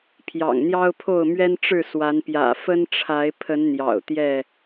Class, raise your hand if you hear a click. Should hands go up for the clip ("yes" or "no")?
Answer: no